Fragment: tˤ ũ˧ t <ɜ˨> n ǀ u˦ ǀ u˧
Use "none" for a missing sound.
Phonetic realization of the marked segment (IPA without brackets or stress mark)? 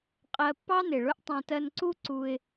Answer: ɜ˧